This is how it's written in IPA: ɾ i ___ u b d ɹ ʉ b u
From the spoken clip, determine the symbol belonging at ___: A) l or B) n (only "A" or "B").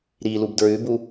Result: A